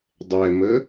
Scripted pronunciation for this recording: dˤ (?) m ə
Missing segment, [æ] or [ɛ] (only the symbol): ɛ